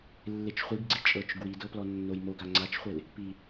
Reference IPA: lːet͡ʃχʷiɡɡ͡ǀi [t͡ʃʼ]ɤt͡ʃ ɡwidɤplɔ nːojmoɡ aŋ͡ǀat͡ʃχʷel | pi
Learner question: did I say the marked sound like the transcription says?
yes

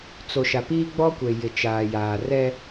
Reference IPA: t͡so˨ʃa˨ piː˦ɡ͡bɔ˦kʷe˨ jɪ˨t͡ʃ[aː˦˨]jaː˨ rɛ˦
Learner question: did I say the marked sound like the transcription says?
no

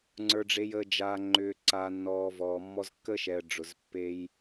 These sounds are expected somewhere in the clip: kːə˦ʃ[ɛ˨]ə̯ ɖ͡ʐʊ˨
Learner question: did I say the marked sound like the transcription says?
yes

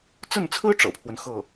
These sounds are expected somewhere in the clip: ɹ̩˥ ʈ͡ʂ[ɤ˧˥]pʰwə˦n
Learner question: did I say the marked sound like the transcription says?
no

